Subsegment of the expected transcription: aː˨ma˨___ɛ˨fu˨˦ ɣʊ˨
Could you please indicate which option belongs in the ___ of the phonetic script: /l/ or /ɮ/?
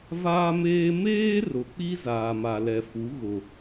l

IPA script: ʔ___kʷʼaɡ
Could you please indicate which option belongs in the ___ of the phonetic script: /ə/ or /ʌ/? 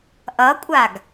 ʌ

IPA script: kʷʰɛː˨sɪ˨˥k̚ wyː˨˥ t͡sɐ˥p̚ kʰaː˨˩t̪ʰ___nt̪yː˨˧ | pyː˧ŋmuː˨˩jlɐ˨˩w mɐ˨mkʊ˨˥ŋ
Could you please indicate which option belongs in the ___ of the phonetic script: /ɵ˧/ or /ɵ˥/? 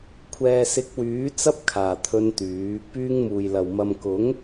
ɵ˧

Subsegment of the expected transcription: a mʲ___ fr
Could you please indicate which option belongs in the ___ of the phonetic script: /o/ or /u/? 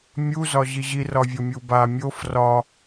o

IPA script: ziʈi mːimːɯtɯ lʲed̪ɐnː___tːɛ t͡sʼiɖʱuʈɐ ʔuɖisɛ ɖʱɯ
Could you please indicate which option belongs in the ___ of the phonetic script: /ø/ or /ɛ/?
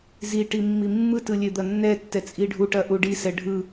ɛ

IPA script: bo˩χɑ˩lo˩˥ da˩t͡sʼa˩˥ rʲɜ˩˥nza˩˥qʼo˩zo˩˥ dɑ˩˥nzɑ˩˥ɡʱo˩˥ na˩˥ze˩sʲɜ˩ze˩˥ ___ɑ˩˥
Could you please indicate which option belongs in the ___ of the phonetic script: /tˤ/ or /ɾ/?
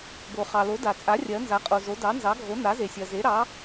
ɾ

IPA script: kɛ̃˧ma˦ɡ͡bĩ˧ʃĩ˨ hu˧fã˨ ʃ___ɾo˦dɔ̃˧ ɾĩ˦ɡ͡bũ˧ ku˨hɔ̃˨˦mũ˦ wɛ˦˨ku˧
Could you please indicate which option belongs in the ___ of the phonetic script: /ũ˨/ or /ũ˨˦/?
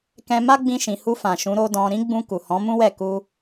ũ˨˦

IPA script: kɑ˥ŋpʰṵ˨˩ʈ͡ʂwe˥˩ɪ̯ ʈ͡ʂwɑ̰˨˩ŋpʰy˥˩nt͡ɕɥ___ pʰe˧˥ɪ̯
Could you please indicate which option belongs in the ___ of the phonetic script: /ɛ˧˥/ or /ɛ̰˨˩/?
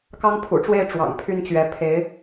ɛ˧˥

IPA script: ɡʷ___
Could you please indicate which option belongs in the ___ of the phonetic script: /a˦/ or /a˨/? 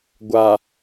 a˨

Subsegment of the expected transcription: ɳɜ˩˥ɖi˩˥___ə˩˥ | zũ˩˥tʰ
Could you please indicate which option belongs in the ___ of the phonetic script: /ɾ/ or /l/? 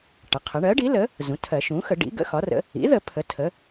l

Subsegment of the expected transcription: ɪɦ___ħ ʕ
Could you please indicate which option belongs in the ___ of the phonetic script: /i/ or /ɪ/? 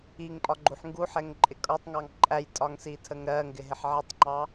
ɪ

